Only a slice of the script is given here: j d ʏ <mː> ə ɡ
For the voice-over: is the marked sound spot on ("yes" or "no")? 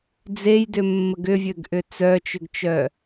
yes